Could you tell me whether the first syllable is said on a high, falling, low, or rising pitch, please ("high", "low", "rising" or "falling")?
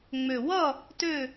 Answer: low